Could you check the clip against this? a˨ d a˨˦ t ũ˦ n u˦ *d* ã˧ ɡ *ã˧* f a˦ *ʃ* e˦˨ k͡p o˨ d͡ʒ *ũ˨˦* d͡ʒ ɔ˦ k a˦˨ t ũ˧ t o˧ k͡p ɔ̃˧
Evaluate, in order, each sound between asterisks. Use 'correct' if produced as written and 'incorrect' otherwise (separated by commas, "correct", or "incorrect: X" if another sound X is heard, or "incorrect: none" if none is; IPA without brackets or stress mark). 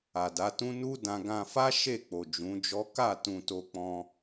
correct, correct, correct, correct